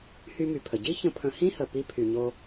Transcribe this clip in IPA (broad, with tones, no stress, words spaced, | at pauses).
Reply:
hy˧my˩pʰə˩ ɟi˥ çə̃˧pʰə̃˧ hĩ˥hə˩ pi˧pʰy˩ɲo˧